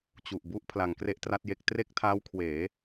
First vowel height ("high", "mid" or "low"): high